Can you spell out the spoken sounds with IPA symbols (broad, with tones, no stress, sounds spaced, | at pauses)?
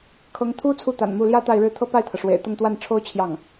kʰ ɤ˧˥ ŋ t̪ʰ u˥ t͡sʰ u˥ t̪ a̰˨˩ n m u˥˩ l j ä˥ t̪ a˥˧ ɪ̯ ɻ ɻ̩˥˧ t̪ʰ ɤ˥˧ p a˥˩ ɪ̯ t̪ʰ ɤ˩ ʂ w ḛ˨˩ ɪ̯ t̪ ʊ˥˧ ŋ t̪ w a˥˩ n ʈ͡ʂʰ o˥ ʊ̯ t͡ɕʰ j ɑ˥˩ ŋ